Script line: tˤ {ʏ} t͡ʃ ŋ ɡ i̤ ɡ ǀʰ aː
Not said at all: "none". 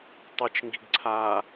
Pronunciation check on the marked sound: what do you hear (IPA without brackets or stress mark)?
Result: ɨ